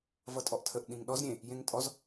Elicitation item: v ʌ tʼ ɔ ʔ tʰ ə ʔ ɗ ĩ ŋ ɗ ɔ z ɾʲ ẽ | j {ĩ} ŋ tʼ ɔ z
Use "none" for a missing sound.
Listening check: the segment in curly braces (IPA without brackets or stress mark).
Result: ẽ